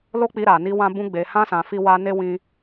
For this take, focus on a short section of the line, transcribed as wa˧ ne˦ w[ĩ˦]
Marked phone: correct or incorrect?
incorrect